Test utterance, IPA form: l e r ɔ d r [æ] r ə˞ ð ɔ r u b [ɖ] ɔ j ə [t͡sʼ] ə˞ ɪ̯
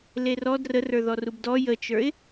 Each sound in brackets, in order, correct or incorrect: incorrect: ə, incorrect: d, incorrect: t͡ʃ

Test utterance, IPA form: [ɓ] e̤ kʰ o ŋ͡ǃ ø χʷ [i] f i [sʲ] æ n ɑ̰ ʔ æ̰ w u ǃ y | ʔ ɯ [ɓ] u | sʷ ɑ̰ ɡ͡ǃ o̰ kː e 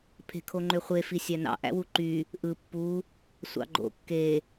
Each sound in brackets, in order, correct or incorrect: incorrect: pʰ, incorrect: e, correct, incorrect: pː

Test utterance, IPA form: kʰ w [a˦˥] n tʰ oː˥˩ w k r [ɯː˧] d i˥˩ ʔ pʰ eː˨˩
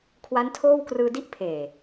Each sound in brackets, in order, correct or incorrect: correct, correct

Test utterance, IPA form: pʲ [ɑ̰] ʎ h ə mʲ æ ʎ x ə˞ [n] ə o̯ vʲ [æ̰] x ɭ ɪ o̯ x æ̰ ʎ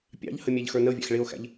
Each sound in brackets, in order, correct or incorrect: correct, correct, correct

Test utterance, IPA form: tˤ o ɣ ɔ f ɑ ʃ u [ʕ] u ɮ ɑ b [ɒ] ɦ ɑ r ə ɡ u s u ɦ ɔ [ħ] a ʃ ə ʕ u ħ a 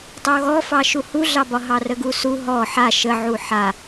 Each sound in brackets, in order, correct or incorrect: incorrect: h, correct, correct

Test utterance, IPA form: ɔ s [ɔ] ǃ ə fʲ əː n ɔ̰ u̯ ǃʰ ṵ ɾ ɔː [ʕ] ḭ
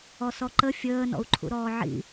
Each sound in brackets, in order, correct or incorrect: correct, correct

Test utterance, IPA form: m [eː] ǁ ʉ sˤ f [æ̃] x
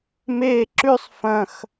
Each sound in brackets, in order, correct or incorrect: correct, incorrect: ɐ̃

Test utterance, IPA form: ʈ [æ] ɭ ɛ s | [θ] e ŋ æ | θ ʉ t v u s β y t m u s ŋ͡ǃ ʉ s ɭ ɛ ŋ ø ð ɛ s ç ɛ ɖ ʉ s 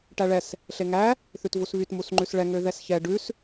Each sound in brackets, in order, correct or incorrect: correct, incorrect: ɬ

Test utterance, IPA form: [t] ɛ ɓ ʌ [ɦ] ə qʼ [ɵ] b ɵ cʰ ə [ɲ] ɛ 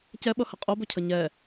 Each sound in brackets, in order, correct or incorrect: incorrect: c, incorrect: h, incorrect: o, correct

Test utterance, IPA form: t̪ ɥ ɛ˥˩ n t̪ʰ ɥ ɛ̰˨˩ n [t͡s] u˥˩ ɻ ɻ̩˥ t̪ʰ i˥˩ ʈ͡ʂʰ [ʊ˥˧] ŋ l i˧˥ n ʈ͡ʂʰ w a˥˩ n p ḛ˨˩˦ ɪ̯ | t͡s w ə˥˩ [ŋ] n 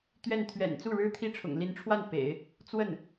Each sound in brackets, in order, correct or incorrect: correct, incorrect: ʊ̰˨˩, incorrect: none

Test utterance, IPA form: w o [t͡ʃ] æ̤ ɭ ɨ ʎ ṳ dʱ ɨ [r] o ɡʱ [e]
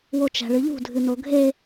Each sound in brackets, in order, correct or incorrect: correct, incorrect: n, correct

